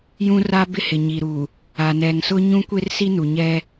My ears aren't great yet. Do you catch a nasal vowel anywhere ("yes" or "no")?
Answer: yes